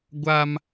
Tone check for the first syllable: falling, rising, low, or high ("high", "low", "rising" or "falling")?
high